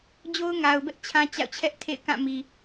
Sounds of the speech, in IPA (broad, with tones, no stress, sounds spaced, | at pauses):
d͡ʑ o˦ ʊ̯ ŋ a˨ ʊ̯ b ɛ˦ ʔ t͡ɕʰ ã˦ t͡ɕ a̰˦˨ ʊ̯ t͡ɕʰ ɛ˦ ʔ tʰ ḛ˦˨ ɪ̯ k ã˦˨ m i˨